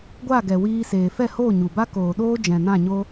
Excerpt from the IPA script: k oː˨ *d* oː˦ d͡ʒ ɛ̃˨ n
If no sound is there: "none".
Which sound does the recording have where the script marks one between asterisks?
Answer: ɗ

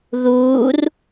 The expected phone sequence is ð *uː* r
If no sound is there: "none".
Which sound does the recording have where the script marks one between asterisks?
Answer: uː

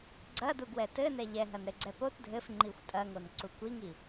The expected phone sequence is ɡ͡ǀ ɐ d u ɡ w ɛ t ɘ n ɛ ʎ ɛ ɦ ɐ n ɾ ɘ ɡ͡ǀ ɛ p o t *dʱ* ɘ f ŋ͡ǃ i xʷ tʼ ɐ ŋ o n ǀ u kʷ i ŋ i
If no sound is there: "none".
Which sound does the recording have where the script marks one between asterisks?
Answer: dʱ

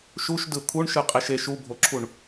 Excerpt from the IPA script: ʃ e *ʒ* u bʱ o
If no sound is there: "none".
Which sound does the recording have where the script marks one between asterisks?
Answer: ʃ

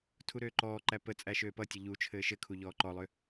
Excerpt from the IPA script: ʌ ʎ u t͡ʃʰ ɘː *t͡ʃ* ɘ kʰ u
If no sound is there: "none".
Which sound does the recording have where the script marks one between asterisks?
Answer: ʃ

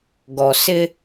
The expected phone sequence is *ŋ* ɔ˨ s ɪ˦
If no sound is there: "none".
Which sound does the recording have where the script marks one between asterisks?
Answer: ɡ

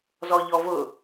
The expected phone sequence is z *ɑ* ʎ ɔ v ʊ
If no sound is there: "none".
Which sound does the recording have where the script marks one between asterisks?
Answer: ɔ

